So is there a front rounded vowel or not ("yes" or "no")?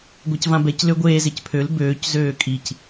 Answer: yes